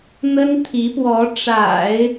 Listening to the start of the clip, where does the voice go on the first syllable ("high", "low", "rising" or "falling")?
high